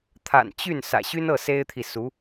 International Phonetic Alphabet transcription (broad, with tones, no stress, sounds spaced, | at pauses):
t̪ʰ a̰˨˩ n t͡ɕ y˥˩ n s ä̰˨˩ ɕ y˥ n ɤ˥˩ s e˥ ɪ̯ t̪ʰ i˨ s u˧˥